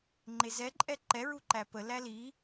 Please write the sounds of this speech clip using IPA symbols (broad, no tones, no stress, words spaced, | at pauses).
ŋ͡ǃezɛǃʼɛ ǃɛ ɹuǃæpə læli